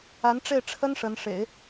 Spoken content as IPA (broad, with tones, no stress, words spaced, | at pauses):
a˧˥nʈ͡ʂe˥˩ɪ̯ʈ͡ʂʰə˥n ʂə˧˥n ʂḛ˨˩˦ɪ̯